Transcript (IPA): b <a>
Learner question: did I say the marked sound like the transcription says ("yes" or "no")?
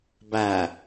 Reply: no